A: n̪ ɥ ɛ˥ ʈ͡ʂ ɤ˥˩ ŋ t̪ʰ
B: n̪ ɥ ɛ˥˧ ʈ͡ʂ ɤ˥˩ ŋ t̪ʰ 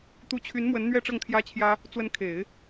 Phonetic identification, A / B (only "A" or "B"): B